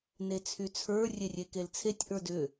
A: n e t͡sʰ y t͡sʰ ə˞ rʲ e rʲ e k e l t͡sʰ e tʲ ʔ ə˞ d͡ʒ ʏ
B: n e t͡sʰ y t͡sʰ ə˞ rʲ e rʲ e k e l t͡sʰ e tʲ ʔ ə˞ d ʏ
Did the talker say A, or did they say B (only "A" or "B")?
B